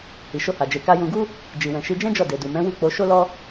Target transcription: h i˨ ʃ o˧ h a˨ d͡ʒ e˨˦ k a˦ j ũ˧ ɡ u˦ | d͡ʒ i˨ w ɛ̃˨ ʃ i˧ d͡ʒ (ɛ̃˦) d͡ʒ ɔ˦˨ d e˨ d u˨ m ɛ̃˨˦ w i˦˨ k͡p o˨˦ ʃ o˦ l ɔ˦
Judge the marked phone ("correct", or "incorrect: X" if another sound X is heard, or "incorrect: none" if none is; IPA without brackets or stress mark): correct